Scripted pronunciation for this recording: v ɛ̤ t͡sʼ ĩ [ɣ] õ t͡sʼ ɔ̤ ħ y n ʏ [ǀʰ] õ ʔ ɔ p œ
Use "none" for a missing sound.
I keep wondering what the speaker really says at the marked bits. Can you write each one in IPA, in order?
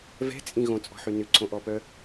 ɣ, ǀʰ

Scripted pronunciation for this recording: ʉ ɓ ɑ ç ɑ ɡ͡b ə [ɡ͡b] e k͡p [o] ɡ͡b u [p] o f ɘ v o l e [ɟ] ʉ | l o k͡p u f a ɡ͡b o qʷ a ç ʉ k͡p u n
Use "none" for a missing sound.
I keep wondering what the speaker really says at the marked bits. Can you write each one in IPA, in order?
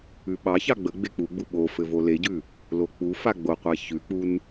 ɡ͡b, u, ɓ, ɟ

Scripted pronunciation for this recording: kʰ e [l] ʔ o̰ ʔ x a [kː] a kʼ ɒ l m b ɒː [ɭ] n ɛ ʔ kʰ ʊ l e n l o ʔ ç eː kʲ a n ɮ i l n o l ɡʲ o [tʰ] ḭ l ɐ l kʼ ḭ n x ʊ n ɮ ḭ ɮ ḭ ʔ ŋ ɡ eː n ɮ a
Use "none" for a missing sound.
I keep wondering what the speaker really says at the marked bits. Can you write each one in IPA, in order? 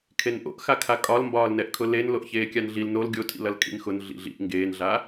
n, kʰ, l, tʰ

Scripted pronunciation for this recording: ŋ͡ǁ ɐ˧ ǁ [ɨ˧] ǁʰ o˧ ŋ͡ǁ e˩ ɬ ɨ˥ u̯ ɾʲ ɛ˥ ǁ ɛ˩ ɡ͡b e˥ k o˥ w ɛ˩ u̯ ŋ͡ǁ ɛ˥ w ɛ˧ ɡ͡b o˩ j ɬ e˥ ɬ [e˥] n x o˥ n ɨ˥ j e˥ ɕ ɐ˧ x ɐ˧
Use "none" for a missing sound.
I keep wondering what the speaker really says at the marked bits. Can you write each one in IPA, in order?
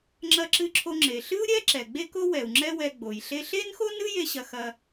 ɨ˧, e˥

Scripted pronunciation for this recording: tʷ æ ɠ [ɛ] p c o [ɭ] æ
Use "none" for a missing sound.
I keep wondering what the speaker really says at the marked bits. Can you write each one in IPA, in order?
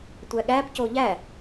æ, ʎ

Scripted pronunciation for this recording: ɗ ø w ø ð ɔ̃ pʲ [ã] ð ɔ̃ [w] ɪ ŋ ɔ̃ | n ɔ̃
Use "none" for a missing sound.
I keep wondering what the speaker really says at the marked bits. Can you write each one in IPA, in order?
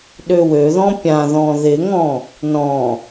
ã, ð

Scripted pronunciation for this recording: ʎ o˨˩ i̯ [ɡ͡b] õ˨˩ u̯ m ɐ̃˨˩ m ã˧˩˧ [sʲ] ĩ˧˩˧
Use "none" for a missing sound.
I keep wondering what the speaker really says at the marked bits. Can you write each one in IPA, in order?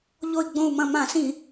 ɡ͡b, s

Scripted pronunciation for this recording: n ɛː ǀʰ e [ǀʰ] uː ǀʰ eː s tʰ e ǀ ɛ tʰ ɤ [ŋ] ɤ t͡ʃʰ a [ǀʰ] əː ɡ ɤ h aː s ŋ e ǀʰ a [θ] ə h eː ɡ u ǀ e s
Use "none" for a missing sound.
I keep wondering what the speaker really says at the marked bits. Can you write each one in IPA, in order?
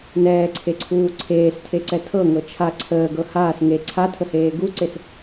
ǀʰ, ŋ, ǀʰ, tʰ

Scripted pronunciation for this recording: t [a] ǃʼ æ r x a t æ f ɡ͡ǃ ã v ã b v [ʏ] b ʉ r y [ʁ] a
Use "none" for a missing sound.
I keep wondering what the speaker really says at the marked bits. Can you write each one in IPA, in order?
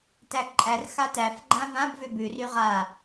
æ, ʏ, ʁ

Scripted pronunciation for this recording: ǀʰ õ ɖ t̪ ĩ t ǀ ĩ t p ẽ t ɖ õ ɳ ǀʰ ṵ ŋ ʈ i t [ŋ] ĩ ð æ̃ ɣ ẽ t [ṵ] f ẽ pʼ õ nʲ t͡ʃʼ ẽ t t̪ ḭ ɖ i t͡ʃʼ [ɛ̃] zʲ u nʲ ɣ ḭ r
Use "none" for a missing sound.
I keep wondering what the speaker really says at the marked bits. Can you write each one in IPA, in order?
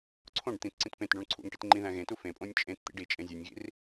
ŋ͡ǃ, u, ẽ

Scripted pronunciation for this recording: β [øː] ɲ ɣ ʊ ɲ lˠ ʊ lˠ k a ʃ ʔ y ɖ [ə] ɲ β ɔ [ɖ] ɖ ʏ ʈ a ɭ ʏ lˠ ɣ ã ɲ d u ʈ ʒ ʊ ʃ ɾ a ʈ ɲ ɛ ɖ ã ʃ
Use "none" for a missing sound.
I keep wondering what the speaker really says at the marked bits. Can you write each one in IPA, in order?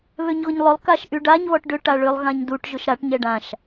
ø, a, ʈ

